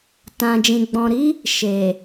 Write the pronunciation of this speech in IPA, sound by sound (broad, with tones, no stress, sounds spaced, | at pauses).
t ã˧ d͡ʒ ĩ˧ ɡ͡b ɔ̃˧ ɾ i˦ | ʃ e˨